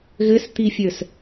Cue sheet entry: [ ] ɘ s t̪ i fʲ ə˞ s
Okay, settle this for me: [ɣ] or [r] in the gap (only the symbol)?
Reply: ɣ